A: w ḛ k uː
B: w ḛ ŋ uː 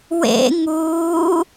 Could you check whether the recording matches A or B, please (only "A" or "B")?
B